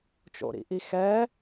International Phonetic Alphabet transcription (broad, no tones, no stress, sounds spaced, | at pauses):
t͡ʃ o̰ ɾ ḭ ʔ i x ɛ